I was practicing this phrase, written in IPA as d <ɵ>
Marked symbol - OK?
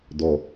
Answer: no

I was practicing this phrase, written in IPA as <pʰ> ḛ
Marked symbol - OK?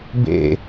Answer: no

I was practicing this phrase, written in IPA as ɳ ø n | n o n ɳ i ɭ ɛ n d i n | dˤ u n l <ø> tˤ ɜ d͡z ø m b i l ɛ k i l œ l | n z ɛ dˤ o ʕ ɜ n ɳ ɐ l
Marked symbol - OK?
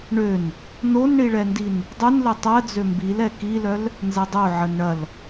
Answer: no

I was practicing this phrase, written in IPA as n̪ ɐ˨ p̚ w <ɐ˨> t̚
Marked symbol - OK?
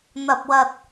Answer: yes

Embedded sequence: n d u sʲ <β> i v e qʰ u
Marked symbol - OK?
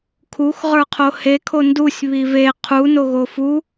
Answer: yes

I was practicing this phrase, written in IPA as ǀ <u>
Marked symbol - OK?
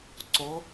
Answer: no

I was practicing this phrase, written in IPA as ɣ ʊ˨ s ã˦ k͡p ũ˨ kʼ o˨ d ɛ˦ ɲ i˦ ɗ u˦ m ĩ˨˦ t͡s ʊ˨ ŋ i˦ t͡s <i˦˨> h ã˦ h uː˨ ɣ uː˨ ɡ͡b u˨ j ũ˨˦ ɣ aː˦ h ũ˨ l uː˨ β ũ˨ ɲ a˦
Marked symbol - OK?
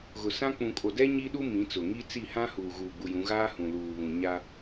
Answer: yes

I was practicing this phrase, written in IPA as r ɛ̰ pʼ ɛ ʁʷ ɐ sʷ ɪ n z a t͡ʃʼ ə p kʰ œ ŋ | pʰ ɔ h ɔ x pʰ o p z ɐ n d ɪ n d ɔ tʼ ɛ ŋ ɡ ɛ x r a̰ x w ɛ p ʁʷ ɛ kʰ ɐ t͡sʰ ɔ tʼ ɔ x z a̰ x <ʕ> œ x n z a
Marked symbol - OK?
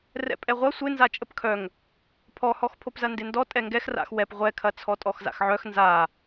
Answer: yes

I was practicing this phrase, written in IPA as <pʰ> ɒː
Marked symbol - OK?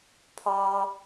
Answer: yes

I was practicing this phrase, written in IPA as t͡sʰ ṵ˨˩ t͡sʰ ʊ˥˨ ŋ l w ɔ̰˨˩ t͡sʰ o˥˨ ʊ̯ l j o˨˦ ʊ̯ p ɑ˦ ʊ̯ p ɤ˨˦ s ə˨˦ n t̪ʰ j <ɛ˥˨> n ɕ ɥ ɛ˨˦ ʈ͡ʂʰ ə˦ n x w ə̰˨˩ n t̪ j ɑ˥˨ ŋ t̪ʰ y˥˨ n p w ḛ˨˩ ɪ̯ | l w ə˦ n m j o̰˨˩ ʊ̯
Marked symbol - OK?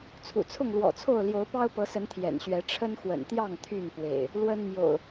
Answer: no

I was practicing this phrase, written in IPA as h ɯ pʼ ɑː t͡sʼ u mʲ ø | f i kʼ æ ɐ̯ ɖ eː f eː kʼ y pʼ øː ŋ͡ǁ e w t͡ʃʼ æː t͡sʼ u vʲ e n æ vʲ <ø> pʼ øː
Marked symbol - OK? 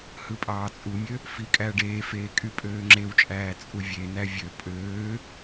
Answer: yes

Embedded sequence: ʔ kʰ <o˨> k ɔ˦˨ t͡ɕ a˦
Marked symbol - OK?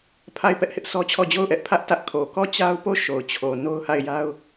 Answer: yes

